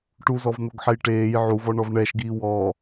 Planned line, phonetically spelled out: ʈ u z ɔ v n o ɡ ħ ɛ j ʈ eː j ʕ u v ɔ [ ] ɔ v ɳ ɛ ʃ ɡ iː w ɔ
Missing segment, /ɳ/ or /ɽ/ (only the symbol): ɳ